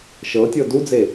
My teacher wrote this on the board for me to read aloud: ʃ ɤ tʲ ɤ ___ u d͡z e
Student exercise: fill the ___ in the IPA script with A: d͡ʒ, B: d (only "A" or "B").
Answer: B